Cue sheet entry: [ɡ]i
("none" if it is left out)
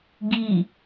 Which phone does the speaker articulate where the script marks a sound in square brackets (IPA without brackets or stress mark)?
ɡ